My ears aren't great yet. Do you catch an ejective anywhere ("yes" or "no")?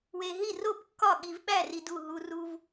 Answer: no